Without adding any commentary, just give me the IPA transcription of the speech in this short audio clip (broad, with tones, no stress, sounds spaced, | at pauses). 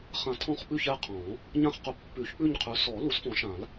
χ ã˨˩˦ tʰ ɔ̃˦˨ χ ɓ ʉ˦˨ ç ɛ˦˨ qʰ ɔ̃˨˩˦ | ɲ ã˦˨ χ q ʊ˨˦ pː ʉ˨˩˦ ç k͡p ʉ˦˨ ɲ qʰ ʉ˨˦ s ɔ˨˩˦ l u˨˩˦ s f ɔ̃˨˩˦ ʃ ã˨˩˦ l